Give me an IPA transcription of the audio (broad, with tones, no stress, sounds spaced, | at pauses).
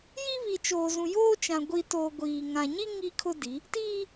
j iː˦ β i˨ t͡ʃ oː˨ z ũ˨ j oː˦ t͡ʃ ã˨ ɡʷ i˨ t o˨ ɡʷ iː˨ ŋ ã˨ ɲ i˦ ŋ i˦ kʰ ʊ˦ d i˨˦ | t iː˦